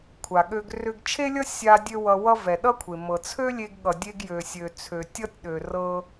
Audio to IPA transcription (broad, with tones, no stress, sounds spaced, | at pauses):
kʷʰ a˩ ɠ ø˧ ɡ r ʏ˧ ɡ t͡ʃʰ e˥ lʲ ʌ˥ sʲ a˧ dʲ ø˥ w ʌ˧ w ʌ˥ v ɛ˩ ɗ ʌ˥ kʷʰ e˩ m ɤ˩ t͡sʰ ø˥ lʲ e˧ ɡ ɠ ʌ˩ dʲ e˧ ɡ j ø˩ sʲ ø˩ t͡sʰ ø˩ tʲ ʌ˥ tʲ ɗ ø˩ r ɤ˧